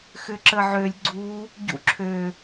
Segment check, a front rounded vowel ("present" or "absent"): present